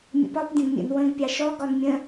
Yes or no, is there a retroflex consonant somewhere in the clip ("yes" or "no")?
no